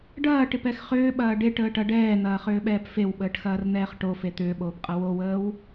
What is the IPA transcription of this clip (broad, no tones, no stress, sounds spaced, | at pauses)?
ɖ ɐː ʈ ɪ p ɛ x χ ʏː ɓ ɐː ɖ e ʈ əː ʈ ɐ ɖ ɛː n̪ ɐː χ ʏː ɓ ɛː p f e w ɓ əː ʈ x ɐː r n̪ ɛː χ ʈ o f e t̪ ʏː ɓ oː p qʼ ɐ w o w əː w